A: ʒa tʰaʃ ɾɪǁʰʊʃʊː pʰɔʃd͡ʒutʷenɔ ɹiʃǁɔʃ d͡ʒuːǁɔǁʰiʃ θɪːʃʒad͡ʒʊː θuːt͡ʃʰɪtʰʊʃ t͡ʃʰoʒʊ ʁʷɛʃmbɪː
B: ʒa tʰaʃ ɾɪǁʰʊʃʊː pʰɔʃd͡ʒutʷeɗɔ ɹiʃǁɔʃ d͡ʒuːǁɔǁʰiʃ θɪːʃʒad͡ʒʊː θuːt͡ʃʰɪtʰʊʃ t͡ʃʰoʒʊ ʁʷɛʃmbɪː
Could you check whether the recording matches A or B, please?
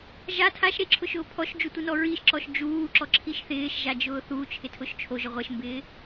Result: A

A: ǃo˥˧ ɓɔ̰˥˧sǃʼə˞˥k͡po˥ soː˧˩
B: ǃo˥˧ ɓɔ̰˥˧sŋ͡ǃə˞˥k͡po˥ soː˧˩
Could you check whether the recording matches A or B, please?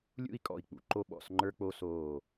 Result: B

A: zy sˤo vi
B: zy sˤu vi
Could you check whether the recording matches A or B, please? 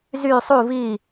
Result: B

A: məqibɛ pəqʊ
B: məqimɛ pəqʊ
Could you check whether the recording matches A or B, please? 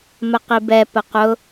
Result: A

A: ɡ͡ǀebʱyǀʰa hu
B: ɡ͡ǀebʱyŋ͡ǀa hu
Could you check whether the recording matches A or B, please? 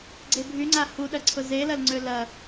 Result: B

